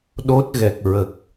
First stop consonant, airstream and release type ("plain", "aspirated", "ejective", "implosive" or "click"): implosive